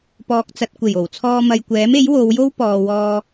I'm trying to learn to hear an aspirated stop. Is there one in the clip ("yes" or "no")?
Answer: yes